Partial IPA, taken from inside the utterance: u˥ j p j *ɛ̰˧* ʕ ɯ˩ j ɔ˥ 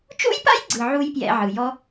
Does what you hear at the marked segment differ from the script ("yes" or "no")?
no